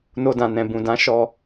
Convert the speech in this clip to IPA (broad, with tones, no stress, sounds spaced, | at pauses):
n o˧ d ã˨ n ɛ̃˨ b ũ˨ d ã˨˦ ʃ ɔ˧